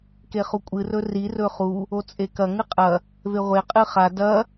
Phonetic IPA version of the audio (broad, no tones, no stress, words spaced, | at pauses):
keχukʷʼɨ rɵri rɵχu | ot͡sʼekɐ ŋɨqʼɐ | veʁʷe qʼɨχa dɐ